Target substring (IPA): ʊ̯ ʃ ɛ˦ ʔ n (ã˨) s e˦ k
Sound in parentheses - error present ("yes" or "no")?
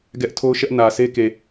yes